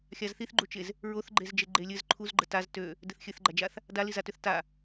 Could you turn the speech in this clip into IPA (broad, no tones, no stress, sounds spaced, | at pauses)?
xʲ a z θ i θ ɡ͡ǃ u t͡ʃ e z | ɹ o θ ɡ͡ǃ e z d͡ʒ e ɡ͡ǃ e lʲ ɘ z ǃʰ u z ɡ͡ǃ ə t a z t ø | d ɘ θ xʲ ɘ θ ɡ͡ǃ a d͡ʒ a θ | d a l i z a t ø θ t a